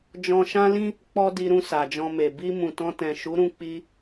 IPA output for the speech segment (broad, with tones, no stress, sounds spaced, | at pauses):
d͡ʒ ɔ̃˧ ʃ ã˦ l ĩ˦ | k͡p ɔ˦ d i˧ ɾ ũ˧ s a˨ d͡ʒ ɔ̃˧ m e˨ b i˧ m ũ˨ t ɔ̃˧ t ɛ̃˨ ʃ u˨˦ ɾ ũ˧ k͡p i˧